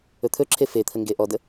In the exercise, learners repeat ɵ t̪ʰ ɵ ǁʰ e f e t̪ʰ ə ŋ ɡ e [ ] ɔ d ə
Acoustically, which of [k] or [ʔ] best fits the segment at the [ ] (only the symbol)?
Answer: ʔ